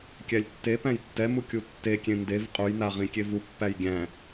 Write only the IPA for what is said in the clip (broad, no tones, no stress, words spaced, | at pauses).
kʲælʲtːepæ̃j tːɛmu kʲutːekʲẽ ndev qʼujna ʁĩkʲevupːæj ɡʲæ̃